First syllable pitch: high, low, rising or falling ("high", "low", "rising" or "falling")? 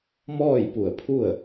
falling